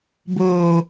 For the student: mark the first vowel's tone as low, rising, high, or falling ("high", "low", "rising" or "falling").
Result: low